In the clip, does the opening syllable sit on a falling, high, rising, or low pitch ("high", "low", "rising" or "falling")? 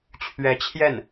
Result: rising